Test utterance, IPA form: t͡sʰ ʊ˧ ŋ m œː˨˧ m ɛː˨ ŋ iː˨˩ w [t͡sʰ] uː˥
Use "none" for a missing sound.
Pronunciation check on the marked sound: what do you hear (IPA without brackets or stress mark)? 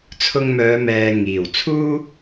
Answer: t͡sʰ